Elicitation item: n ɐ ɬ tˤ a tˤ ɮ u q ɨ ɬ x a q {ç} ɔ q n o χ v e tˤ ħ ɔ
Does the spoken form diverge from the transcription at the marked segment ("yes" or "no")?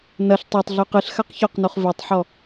no